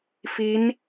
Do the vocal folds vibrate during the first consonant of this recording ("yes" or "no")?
no